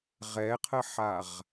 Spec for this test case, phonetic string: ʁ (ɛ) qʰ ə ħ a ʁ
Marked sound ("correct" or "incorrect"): correct